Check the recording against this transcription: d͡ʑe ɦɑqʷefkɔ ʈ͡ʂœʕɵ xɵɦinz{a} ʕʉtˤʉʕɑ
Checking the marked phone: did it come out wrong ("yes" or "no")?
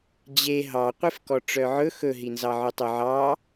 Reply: yes